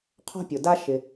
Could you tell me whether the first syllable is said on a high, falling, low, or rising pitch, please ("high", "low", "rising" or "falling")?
high